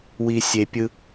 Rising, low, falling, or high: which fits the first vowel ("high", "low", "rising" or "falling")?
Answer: low